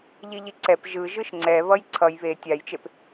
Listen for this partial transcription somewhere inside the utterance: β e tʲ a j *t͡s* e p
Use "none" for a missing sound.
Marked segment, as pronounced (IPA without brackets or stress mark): t͡ʃ